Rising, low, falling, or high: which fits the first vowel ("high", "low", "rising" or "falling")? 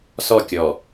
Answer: falling